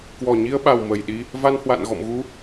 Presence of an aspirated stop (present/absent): absent